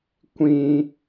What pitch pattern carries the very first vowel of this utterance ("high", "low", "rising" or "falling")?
high